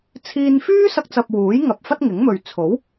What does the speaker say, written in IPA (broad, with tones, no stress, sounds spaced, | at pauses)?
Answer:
t͡sʰ iː˧ n f yː˥ s ɐ˧ k̚ t͡s ɐ˨ p̚ w uː˨˥ j ŋ ɐ˨ p̚ f ɐ˥ t̚ ŋ ɪ˨˥ ŋ m ɵ˨ ɥ t͡sʰ o˨˥ w